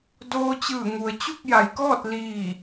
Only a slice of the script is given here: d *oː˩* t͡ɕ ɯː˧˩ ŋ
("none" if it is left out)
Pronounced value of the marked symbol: oː˧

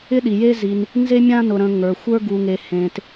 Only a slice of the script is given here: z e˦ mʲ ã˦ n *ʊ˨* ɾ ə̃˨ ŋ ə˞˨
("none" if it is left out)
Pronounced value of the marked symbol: ʊ˨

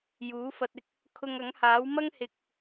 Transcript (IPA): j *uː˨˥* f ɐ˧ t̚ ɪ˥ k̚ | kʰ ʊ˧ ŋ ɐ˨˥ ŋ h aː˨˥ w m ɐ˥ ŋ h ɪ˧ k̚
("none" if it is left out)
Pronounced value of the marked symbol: uː˨˥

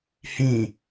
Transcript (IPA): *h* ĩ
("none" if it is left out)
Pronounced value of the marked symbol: h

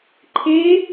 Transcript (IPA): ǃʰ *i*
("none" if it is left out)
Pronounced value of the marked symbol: e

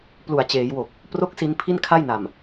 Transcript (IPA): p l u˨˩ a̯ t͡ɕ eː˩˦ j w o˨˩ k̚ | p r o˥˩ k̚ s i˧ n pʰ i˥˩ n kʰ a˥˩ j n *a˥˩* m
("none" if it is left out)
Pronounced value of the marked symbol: a˨˩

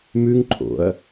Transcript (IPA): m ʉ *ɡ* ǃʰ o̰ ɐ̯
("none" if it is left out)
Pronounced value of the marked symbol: ŋ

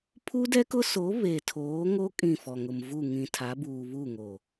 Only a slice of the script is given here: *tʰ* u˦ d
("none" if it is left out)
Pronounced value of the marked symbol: pʰ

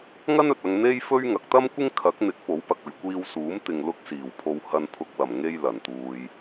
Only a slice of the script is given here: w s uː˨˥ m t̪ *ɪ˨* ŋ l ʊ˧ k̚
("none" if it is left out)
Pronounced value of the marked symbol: ɪ˨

